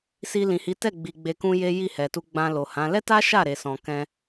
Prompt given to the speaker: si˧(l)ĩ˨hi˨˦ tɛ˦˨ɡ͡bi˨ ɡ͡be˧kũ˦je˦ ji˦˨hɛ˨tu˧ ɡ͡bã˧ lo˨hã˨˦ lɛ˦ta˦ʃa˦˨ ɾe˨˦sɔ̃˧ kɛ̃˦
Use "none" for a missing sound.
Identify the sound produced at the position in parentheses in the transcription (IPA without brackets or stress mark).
l